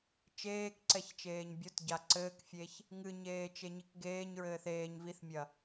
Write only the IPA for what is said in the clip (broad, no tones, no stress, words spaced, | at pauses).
t͡ʃeːkǀɛçt͡ʃeːɲ bʲotɟa ǀɘːkfʲeç | ŋɨɲeːt͡ʃeɲik ɡeːɲɹɘːθ eːɲ viθmʲɐ